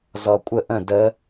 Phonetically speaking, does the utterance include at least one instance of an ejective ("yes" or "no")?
yes